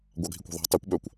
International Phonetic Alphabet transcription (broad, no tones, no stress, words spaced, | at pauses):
ɡʷɑɡʱikʷɔ̤ðˤæ̤ tˤøkʷ ɓœkʷ